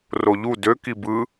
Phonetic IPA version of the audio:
roʎu dø kibɯ

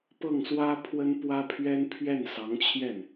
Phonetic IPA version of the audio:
pɤ˥˩ŋswä˥ pʰwə˥npwä˥pʰɥɛ˥n pʰɥɛ˥˩nsɑ˧˥ŋt͡ɕʰjɛ˥˩n

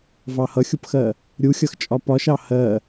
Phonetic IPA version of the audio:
vɑhʌxʲʊpxɜ | ɾʲuxʲʌxt͡ʃʼɒ pɒʃɑ hɜ

